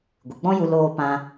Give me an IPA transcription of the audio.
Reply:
ɡʷ ɨ˨ ɡ͡b ɔ̃˦ j u˧ l oː˧ p ã˧

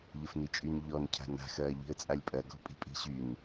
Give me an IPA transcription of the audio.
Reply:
ʎ ə f n i t͡ʃʼ y n ʎ ɔ n cʰ a̤ n a̤ x ɐː ʎ i̤ ə̯ t͡sʼ a lʲ pʼ ɐ ɡ ɔ̤ pʼ i̤ pʼ i̤ ɕ y n

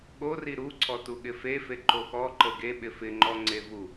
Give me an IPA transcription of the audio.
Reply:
ɠ o r i ɾ u ǀʰ ɔ t u ɠ ɪ f e f e ǃ o x ɔ ǃ ə ɡ e ɓ ɪ f ɪ ŋ͡ǃ ɔ ŋ͡ǀ e v u

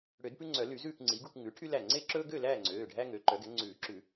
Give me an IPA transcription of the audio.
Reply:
ɽ ø˨˩˦ d p ʉ˦ ŋ͡ǀ œ˨˩˦ l y˨˩˦ z ʉː˥˨ k ŋ͡ǀ i˩˥ ɡ u˥˨ k ŋ ʉ˩˥ ʈʰ y˦ l æ˧˩ ŋ͡ǀ e˦ ǁ ɵː˦ ɡ ø˥˨ l æː˥˨ ŋ͡ǀ øː˩˧˩ ɖʱ æ˦ ŋ ø˩˥ ǃ œ˩˥ ɡ ɛ˩˥ ŋ͡ǀ ʉː˨˩˦ ǁ ʉ˨˩˦

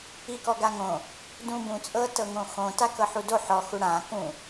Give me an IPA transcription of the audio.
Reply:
i k ɔ ɡ a ŋ õ | d ũ b ũ t͡sʼ ɤ t ɤ ŋ õ x õ t a k ɤ ħ u d o ħ ɔ x u ɽ ã k ũ

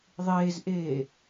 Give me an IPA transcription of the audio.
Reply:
ðˤ eː z ʔ eː

